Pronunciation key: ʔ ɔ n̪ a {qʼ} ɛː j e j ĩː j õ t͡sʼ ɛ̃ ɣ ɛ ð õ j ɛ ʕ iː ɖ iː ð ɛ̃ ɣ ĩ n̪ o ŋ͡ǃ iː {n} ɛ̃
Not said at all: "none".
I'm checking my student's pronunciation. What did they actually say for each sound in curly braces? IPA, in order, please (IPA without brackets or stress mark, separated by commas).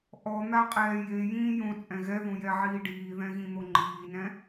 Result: qʼ, n